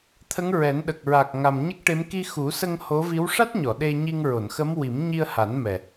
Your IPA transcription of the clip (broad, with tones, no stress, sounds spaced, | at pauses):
t̪ʰ ə˧˥ ŋ ɹ ɛ˨˩˦ n ɗ ə˨˩ k̚ ɹ a˨˩ k̚ ŋ a˨˩ m ɲ ə˦˥ k̚ ʈ e˧˥ m k i˧ x u˨˩˦ s ə˧ ŋ h o˧˥ v i˧˥ w ʂ a˦˥ t̚ ɲ ɔ˨˩˨ ɗ e˧ ɲ i˧ ŋ ɹ o˨˩˨ n x ə˧˥ m w i˨˩˦ m ɲ i˧ ə̯ h a˨˩˦ n m ɛ˨˩